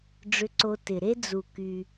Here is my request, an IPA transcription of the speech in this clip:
ɖ͡ʐʏ˧ǀo˧ tɪ˩ ɾe˥d͡zu˩ ky˩

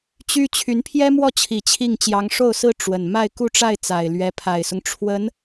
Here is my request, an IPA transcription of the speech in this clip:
t͡ɕy˥ t͡ɕʰy˧˥npʰjɛ˥mwɔ˥˩t͡ɕʰi˨˩ t͡ɕʰi˥˩ŋ t͡ɕjɑ˧˥ŋʂo˥˩ʊ̯sɹ̩˥ ʈ͡ʂwə˨˩n ma˥˧ɪ̯ku˥˧ʈ͡ʂa˥˩ɪ̯ t͡sa˨˩ɪ̯lɥɛ˧˥pʰa˨˩ɪ̯sʊ˦ŋ ʈ͡ʂʰwə˧˥n

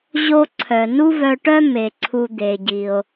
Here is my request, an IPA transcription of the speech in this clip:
ʑo˧ǀʰœ˩ nu˥vœ˧ʈœ˥ me˩ǀʰu˧ d̪e˩ɟi˩o̯

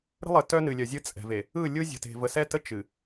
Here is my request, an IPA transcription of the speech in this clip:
ɾə̤˦lˠə˨ tœ˦nɨ˨lʲœ˨zʲɨ˦ t͡sʼɛ̤˨ve˨ | ɯ˦˨lʲɯ˦zʲə̤˨te̤˨ və˨sɛ˦tə˦ t͡ʃɨ˨

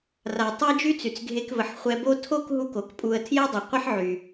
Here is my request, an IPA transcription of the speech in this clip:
ra˩tˤɛ˥ d͡ʒy˥t͡sy˩t͡sɡʱe˧kvə˩ħ χʷɛ˧bo˥ tʰo˥k ɦu˥ko˩kpʼu˧ə̯ tʰjɛ˥dˤə˩qʷə˥ħ ʕy˩

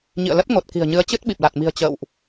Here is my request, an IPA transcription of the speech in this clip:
ɲḭ˧˨ə̯lə˦˥t̚ ŋo˨˩t̚ ki̤˨˩ə̯ɲɨ˨˦ə̯ t͡ɕɨ˦˥t̚ ɓi˨˩p̚la˨˩t̚mi̤˨˩ə̯ t͡ɕə̰ː˧˨wʔ

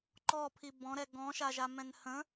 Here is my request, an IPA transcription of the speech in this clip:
ǃɔpʰi bɔ̃ɾɛ ɡɔ̃ʃaʒamɛ̃n hə̃

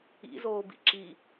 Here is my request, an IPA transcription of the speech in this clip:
ḭzoːbḭ ǁi

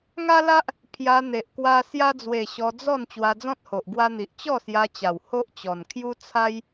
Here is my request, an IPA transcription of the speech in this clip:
ŋa˦la˦ʔ | pʰja˧n̪e˨ʔkwa˧ sja˧d͡zwe˨˩ ɕɔ˧d͡zɔ˥˧n t͡ɕwa˧d͡zɔ̃˦t̚ho˨ʔ ɡwa˧n̪i˨ʔ t͡ɕɔ˥˧sja˧t͡ɕa˨˩w ho˦ʔt͡ɕɔ˨˩n kʰju˦t͡sʰa˦j

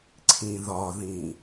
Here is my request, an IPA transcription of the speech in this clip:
ǀʰĩðɒðĩ

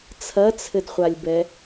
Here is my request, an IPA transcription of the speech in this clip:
t͡sʰɐt͡sʰɘdχʷalʲbɛ

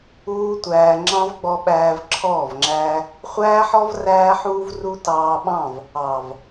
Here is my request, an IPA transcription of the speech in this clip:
uː˦tʷæː˧ ŋ͡ǁɑ̃˦vɡ͡bɔ˧ ɓæː˧v ǁʰɔː˦˨vŋ͡ǁæː˦ | χʷæː˦ħɔ˦v ræː˦ħuː˦v ru˧ tɑː˧ɓɑ̃˦˨v | ɑ˨v

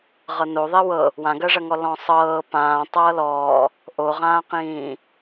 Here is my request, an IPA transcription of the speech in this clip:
ʁɤnoðˤi wɤ | wãɡɜʐɐŋɔ lɔ̃sˤɤː pãː tˤɤːlɔː | ʔoʁãːqĩː

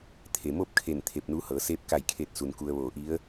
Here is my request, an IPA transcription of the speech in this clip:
t̪ʰe˩moː˥˨p̚kʰe˧˩n t̪ʰe˧˩p̚nu˧˥hɤː˩˧ seː˧p̚ka˧˩jkʰe˧˩t̚su˩n ku˧ə̯ʋoː˧˩ʔi˧˥ə̯

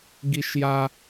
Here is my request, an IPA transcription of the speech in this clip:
ɡiʃja

